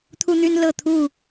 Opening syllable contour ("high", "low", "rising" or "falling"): high